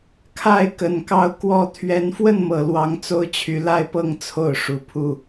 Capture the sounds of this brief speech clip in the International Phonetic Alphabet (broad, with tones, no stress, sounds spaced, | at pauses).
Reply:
kʰ a˥˨ ɪ̯ k ə˨˩ n k ɑ˥˨ ʊ̯ k w ɔ˥˨ t̪ʰ ɥ ɛ˨˦ n f w ə˥˨ n m ɤ˨˩ l w ɑ˨˦ ŋ t͡s o˦ ʊ̯ t͡ɕʰ y˨˦ l a˥˨ ɪ̯ p ɤ˥˨ ŋ t͡sʰ o˥˨ ʊ̯ ʂ u˨˦ pʰ u˥˨